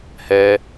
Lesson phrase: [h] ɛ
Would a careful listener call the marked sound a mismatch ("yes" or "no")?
no